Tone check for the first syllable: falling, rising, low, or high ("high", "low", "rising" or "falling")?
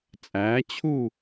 rising